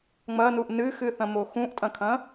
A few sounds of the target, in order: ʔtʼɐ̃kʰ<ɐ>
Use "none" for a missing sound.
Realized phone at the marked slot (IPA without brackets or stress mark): ɐ̃